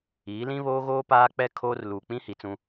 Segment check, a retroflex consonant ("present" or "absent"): absent